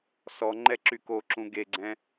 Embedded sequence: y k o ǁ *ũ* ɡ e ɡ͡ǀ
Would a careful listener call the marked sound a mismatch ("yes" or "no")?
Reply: no